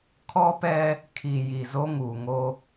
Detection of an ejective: absent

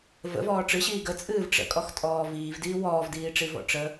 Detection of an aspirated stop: absent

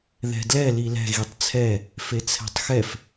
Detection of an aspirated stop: present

